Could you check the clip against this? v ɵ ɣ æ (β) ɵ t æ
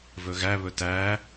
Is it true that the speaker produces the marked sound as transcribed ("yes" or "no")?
yes